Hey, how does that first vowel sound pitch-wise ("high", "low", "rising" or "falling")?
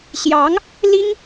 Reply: rising